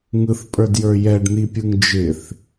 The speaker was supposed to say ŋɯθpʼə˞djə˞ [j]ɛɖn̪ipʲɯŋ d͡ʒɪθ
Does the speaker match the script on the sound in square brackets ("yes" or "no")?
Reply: yes